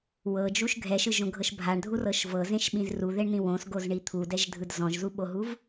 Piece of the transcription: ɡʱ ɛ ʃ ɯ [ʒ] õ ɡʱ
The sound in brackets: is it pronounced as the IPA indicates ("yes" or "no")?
yes